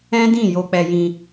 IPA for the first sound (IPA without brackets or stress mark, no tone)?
ɛ̃